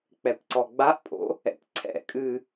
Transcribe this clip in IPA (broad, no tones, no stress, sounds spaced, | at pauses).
k͡p ɛ p ǀ ɔ ɡ͡b a ʔ pʼ o̰ | ɛ̰ p ǀʰ ɛ̰ kʼ ɨ